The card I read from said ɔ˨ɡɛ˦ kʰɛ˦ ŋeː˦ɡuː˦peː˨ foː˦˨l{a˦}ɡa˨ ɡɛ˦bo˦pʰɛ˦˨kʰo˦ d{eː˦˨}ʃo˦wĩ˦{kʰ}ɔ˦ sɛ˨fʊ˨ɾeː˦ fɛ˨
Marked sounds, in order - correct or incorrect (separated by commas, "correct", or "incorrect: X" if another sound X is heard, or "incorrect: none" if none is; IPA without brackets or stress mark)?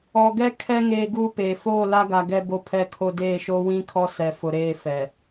correct, correct, correct